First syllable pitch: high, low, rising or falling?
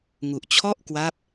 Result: low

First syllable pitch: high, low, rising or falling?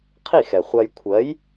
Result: falling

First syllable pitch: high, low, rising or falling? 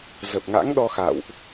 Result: low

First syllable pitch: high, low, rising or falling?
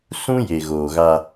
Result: high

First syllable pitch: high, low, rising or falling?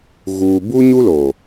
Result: low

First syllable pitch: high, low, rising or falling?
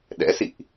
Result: rising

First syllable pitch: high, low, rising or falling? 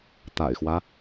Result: low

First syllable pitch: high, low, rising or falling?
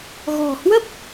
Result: low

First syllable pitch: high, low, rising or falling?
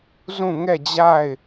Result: falling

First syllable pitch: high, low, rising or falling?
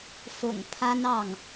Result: low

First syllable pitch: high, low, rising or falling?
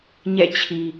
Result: falling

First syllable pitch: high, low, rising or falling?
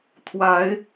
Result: rising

